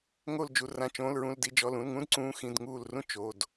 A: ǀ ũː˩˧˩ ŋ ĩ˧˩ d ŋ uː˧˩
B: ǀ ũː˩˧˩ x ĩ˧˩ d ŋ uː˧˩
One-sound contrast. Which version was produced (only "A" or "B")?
B